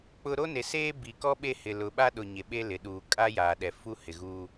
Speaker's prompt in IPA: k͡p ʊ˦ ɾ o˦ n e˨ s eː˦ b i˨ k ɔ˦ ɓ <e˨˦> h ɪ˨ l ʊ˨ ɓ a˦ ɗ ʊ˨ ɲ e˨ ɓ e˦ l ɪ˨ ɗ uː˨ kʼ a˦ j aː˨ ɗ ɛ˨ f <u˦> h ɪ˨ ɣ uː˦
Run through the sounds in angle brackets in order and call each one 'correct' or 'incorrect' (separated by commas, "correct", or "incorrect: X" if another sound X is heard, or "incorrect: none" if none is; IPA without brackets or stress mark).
incorrect: e˦˨, correct